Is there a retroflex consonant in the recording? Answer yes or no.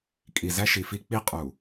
no